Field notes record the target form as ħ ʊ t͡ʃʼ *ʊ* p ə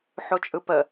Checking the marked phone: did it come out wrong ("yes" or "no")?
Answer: yes